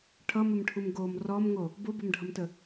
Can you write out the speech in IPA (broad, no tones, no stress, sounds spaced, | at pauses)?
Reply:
ʈʰ ʌ m ɘ m ʈʰ u m ɡ o m r ɔ m ŋ o | b o b ʌ m ɖʱ ʌ m t ə